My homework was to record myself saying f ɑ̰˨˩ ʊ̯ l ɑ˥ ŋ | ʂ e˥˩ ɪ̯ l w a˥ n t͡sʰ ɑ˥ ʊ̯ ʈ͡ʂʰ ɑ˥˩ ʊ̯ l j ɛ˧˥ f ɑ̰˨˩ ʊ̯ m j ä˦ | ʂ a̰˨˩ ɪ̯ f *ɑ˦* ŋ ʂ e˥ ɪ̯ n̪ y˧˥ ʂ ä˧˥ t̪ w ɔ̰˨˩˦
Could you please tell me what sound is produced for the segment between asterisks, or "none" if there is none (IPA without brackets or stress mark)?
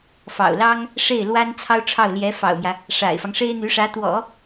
ɑ˦